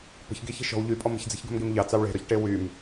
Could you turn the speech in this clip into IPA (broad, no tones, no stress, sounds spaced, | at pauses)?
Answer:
p ə̤ ç ɡ e ç e̤ ʃ ɔ̤ w ʎ y pʼ ɔ m ə̤ ç d͡z e̤ ç ɡ ə̤ m ɡ e m ʎ ɑ t͡s ɑ w ɭ e̤ ɾ ɔ ç ʈ e w y m